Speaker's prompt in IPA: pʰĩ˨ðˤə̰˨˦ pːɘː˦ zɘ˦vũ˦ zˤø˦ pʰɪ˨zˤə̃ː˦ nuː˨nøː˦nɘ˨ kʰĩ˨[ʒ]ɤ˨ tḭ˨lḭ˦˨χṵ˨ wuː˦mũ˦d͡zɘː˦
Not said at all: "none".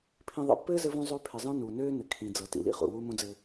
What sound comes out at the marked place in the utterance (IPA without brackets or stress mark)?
d͡z